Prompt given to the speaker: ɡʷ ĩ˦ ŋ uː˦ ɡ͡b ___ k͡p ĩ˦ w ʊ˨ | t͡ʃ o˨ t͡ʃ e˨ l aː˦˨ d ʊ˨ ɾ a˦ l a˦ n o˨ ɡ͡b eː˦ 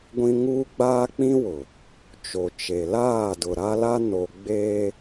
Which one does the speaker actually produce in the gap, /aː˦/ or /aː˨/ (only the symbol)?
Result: aː˦